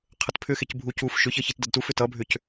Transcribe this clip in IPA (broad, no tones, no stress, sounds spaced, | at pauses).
qʰ ə t pʰ ʏ x e c bʱ u c u f ʃ ʏ ç ʌ ç i t d ʌ d t u f ʏ t ʌ bʱ ʏ c